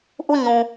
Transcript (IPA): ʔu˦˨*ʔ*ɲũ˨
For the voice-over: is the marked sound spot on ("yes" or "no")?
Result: no